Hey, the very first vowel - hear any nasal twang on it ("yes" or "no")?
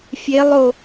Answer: no